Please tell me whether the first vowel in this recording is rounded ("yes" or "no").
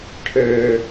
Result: no